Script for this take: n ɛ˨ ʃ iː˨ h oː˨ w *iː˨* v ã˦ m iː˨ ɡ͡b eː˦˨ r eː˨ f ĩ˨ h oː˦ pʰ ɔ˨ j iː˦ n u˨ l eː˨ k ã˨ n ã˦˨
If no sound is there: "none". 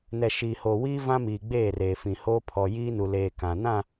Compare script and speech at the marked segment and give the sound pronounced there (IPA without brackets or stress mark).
iː˦